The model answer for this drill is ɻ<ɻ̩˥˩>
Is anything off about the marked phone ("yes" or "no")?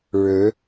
yes